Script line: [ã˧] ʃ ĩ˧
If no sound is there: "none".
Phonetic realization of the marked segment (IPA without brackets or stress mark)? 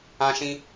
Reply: ã˧